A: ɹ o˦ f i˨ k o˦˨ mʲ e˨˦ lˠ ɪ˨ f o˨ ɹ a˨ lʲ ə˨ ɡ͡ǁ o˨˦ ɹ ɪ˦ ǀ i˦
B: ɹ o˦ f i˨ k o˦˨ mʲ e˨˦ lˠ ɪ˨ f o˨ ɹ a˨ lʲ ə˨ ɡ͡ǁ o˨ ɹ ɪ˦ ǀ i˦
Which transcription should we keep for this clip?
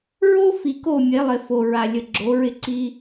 A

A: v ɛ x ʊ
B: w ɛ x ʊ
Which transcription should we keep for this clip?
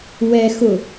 B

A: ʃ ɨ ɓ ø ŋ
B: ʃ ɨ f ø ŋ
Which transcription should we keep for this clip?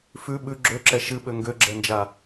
A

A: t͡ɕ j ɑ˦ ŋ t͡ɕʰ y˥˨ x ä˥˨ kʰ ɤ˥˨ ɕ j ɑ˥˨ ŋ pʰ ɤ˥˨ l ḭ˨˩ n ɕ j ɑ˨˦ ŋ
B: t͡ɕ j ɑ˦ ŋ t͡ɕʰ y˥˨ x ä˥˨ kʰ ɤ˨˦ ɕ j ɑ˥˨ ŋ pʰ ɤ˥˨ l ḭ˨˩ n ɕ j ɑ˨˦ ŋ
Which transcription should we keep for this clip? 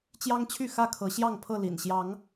B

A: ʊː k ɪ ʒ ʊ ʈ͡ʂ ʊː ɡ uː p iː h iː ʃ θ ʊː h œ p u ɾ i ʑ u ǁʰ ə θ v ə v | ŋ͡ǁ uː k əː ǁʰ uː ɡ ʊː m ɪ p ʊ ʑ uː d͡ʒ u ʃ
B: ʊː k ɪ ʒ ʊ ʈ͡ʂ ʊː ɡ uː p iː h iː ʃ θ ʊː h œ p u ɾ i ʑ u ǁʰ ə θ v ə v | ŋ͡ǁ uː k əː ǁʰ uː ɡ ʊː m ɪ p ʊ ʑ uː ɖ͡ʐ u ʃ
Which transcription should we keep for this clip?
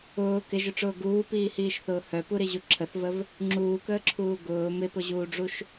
B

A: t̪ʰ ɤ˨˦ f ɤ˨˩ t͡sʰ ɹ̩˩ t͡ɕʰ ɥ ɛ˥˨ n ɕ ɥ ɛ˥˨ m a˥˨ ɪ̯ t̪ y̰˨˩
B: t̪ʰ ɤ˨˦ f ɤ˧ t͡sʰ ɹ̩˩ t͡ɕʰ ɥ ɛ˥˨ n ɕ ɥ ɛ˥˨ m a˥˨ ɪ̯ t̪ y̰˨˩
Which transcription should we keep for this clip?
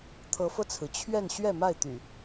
B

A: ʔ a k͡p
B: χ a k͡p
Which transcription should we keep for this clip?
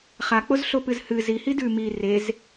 B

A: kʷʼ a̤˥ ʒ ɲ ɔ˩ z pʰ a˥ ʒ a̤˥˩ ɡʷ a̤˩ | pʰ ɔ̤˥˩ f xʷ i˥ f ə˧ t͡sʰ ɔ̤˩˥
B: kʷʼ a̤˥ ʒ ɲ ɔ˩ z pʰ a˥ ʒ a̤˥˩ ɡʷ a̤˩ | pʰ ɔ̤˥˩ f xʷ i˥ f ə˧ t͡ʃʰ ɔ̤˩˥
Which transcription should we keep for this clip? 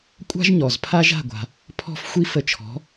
B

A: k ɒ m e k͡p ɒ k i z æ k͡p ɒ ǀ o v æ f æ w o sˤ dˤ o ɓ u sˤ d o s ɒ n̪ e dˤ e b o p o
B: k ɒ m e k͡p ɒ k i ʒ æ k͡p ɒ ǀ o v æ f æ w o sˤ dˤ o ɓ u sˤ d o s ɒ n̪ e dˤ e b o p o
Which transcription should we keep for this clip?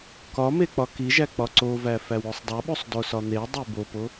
B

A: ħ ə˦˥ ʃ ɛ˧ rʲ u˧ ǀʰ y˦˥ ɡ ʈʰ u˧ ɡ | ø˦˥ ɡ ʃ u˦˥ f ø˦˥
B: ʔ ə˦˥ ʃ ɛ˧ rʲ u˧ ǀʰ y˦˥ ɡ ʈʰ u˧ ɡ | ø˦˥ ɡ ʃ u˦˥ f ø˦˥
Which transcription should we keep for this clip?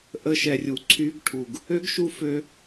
B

